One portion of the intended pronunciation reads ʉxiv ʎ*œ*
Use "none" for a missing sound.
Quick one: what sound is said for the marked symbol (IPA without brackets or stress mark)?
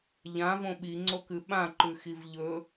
ɵ